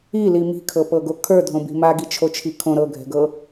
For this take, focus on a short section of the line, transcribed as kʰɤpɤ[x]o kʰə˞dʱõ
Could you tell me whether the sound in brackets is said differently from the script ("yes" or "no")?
yes